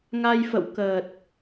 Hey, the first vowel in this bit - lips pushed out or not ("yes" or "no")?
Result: no